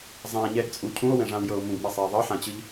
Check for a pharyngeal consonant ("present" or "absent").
present